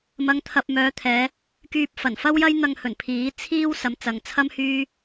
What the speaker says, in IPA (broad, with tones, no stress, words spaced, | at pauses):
mɐ˨˧ŋt̪ʰɐ˨p̚ mœː˨˧t̪ʰɛː˨˧ | kyː˧p̚fɐ˨˩n fɐ˥wjɐ˥jn̪ɐ˧ŋhɵ˨˩n pʰiː˨˥t͡sʰiː˥w sɐ˨˧mt͡sɐ˨ŋt͡sʰɐ˥m hyː˥